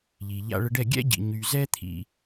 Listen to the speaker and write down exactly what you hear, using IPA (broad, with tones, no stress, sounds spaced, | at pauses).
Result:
ʎ i˨ ʎ a̰˧ ɭ ə˧ ɖ ɛ˦˨ ɡʲ ɛ̰˦ ɟ ḭ˨ ɲ y˨ z ɛ˦ t̪ʰ ḭ˧